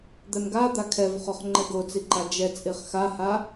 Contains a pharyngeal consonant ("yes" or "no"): no